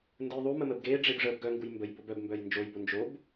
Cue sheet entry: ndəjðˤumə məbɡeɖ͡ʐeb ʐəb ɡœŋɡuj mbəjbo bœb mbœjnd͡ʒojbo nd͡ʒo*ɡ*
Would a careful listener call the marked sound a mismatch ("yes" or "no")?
yes